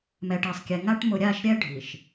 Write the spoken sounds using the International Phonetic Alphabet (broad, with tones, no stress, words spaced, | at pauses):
mɛ˨ʈe˨sˤkʲɛ˨ŋa˦ʈ mʊ˨ɾʲa˦˨ʃɾʲɛ˦ ɖʱi˨ʃ